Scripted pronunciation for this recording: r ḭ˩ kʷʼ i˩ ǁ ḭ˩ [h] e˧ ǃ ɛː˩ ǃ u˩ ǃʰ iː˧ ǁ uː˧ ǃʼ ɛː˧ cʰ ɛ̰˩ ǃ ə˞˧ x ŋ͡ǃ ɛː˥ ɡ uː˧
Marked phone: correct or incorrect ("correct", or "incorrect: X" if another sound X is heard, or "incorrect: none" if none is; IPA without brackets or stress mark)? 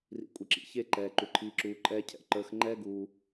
incorrect: ç